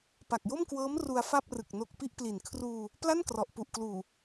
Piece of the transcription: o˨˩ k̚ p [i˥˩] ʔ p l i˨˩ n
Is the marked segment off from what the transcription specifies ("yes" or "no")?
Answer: no